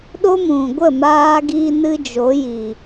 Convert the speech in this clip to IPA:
ɗ o˦ m ũ˨ ɡʷ ə˦˨ m aː˧ ɡ i˧ n ɨ˦ d͡ʒ o˨˦ j i˨

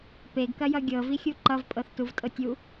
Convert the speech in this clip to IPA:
p e ɡ k ɐ j ʌ ɡʲ ɤ v i xʲ u ǃ ʌ v pʼ ɤ θ t u v tʼ ɤ tʲ u

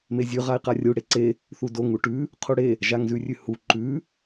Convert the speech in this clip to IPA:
m e zʲ ʉ ʁ a i̯ q a rʲ u ɽ e ǀ e | θ u d o ŋ u ʈ ʉ | qʰ u ɽ e | ʒ a ŋ z ʉ rʲ ʉ h u ǃ ʉ

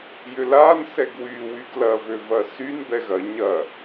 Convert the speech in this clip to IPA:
j ʏ l a n s ɛ ɡ w y w y ɡ l ɐ v ø v ɐ s y n b ɛ ɣ ɐ ɲ ɐ

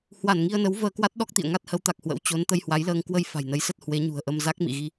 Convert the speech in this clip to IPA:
h w a˧˩ n ŋ i˧ ə̯ n ə˨˦ w v əː˧ k w a˦˥ t̚ ɗ ɔ˦˥ k̚ t̪ ḭ˧˨ ə̯ ŋ a˦˥ t̚ h ə˨˦ w t̪ a˨˩ k̚ h w ə̰˧˥ w t͡ɕ o˨˦ n t̪ ə˧ j h w a˨˦ j l əː˧ ŋ k w ə˧ j f a̤˨˩ j n ə˨˦ j s ə˦˥ t̚ h w e˨˦ ɲ ṳ˨˩ ə̯ ʔ ə˧ m z a˦˥ k̚ m ḭ˧˨ ɣ i˧

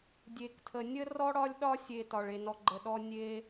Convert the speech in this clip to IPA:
dʲ e˩ k tʰ ə˩ nʲ ə˥ r ɔ˦ ɽ ɒ˦ lʲ ɗ ɒ˦ sʲ e˨ t ɒ˩ ɭ e˨ n ɔ˨ ɡ͡ǃ ə˨ ɗ ɔ˦ nʲ e˦

